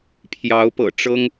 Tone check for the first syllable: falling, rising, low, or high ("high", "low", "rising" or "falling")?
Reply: rising